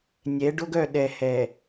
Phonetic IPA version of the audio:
nʲɛ˨˦ɖo˦ɡœ˦˨ ɗɛ˨hɛ˨

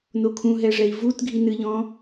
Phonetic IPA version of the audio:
nokʰũɦɛʐɛi̯ vut ɡʱinɨʎɔ̃

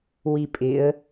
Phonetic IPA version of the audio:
wipʼɪə̯

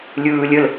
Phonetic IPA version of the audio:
lʲɯːlʲəl

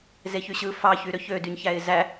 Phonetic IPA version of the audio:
zeçyɕɯ fɑçy ɾøçødyɲçæɪ̯ zæ

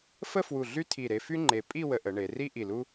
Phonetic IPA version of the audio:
fə˥˧fwu˧˩ ɮy˥tʰi˧˩ɾe˧fy˥ ŋ͡ǃe˧ pʼi˥˧ wə˧ʔə˩˧ɳe˩˧ri˥ ʔi˧˩lu˥

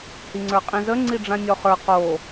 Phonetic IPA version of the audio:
hiŋ͡ǀə˞qʼĩzə ŋ͡ǀiɖ͡ʐãnʲɔχə˞ qo

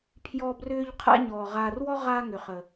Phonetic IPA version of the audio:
pʰjɔ˦brʏː˦ʎ qʰa̰˦ɲɔː˨ ʁaː˨rwɔ˦ ʁaː˦ŋʏ˨χə˨

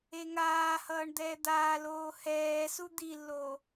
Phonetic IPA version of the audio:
eŋaːhʌːɳ d̪ɛːd̪aːloː hɛːsu d̪ilːoː

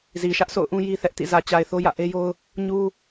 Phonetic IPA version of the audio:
zi˨ ʃä˦ʔsʰo̰˦˨ʊ̯ʔũ˦ ji˦ θɛ˦ʔtḭ˦˨ zä˨t͡ɕa˨ɪ̯ θo˦jä̰˦˨ʔe˦jo˦ʊ̯ | ɲu˦

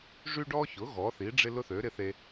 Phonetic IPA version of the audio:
ʐy˥ɖɔ˥çʊ˩˥ ɣɔ˩˥ θi˩˥ɖ͡ʐɪ˥lʊ˥θø˩˥ ɾɪ˥θe˥

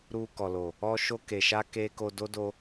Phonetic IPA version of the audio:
ɾu˧kɔ˨lo˨ | ɔ˧ʃo˧ke˨ʃa˧ ke˦ ko˧do˦ do˧

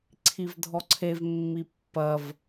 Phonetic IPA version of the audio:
ǀʰivdʱɔǀʰev mːipːɐv

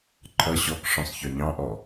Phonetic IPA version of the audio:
ǃʰʌ ɕɔkʂɔ̃sˤ çɒɲɑ̃ʔɔ

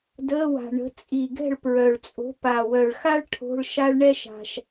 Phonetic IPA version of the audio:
dəː˧˥˧wa̤˨˩ɳə̤˨˥ t͡sʼi˨˩ɡɛ̤˥˨ɭpɹœ˨˩ɭt͡sʼo̤˨˥ pa˨˩wœ˨˩ɭxa˥ɭ ʈʰo̤˧˥˧ɭʃa˥ɭ ɳɛ˥ʃa̤˨˩ʃ

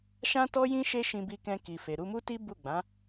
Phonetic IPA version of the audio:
ʃã˦tɔ˦jĩ˦ ʃe˦ʃĩ˧bi˧kɛ̃˧ ki˨fe˨ ɾu˧mu˦ti˦ bu˦˨ɡ͡bã˨˦

